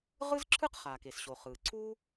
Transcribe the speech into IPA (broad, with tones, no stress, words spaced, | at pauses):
ʁɯ˥zǁʰɯ˥qχaː˩k e˩sɕo˩ χɯː˩ ǀʰu˥